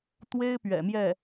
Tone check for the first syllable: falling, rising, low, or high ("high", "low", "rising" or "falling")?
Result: high